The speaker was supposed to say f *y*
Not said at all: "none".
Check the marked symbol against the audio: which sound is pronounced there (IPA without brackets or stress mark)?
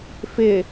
ɪ